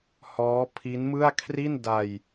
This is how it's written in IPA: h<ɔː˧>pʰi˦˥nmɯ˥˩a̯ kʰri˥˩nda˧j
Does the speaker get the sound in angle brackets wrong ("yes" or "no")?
yes